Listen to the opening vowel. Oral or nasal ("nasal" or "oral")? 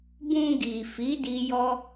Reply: nasal